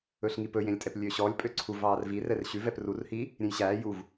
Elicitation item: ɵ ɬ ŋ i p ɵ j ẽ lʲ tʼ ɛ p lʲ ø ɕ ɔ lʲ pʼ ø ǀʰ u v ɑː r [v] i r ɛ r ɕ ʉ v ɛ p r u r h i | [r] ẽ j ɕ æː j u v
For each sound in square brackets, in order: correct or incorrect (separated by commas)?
correct, incorrect